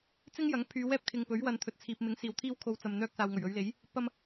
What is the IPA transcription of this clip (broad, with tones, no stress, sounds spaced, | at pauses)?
t͡s ɪ˥ ŋ j ɐ˨˥ ŋ pʰ yː˨˧ w ɛː˥ p̚ kʰ ɪ˨ ŋ p ɵ˨˥ ɥ w ɐ˨˧ n t̪ʰ ɵ˨ t̚ t͡sʰ iː˨ p̚ m ɪ˨˥ ŋ s iː˨ w t̪ʰ iː˥ w kʰ o˧ w t͡s ɐ˨ m n̪ œː˧ k̚ s aː˨ w ŋ ɵ˨˩ ɥ ɵ˨˧ ɥ l e˨˥ j | p ɐ˧ m